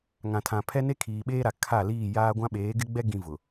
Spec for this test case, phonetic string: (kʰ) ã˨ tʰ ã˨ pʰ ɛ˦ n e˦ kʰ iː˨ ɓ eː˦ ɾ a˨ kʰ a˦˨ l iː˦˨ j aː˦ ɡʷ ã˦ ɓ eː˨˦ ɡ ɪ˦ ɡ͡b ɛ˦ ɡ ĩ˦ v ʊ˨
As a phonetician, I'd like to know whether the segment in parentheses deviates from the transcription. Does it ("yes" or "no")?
yes